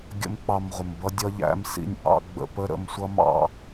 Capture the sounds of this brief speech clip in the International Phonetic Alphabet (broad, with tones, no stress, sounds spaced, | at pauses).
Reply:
ɡʲ ə̰˦ m k͡p ɑ˧ m ʁʷ ə˨ m b ʌ˦ dʲ ʌ˦ ʎ æ̰˦ m s ḭ˦˨ nʲ ʔ ɑ̰˦ ɡ͡b ə̰˧ p ə˦ ɾ ə̰˧ m sʷ ʌ˦ m ɑ̰˦